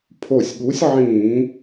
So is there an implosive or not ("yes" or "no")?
yes